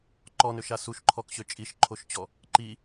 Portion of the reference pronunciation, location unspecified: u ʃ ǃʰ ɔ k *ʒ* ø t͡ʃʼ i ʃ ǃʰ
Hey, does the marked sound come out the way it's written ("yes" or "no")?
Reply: no